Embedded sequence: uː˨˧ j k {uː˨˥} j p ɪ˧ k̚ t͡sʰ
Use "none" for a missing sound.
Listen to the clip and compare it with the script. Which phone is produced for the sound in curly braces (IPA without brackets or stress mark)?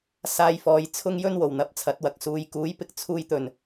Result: uː˨˥